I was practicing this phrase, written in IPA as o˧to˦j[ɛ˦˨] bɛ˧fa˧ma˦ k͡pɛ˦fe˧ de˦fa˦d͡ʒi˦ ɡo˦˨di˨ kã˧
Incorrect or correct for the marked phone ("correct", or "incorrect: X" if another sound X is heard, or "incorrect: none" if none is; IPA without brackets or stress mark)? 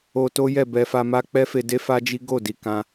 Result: correct